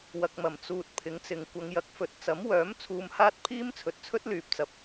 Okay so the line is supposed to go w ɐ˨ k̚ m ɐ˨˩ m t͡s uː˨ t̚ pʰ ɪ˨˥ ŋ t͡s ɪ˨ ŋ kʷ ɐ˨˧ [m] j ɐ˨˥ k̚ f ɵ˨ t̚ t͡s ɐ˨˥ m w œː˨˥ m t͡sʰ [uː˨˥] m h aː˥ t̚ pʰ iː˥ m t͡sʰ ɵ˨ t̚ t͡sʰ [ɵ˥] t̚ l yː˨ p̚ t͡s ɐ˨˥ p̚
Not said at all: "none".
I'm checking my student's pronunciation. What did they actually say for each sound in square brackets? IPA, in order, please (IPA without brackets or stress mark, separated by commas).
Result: ŋ, uː˧, ɵ˥